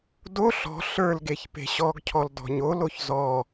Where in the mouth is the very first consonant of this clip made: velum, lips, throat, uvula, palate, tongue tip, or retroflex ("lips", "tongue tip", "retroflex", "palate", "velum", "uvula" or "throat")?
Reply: tongue tip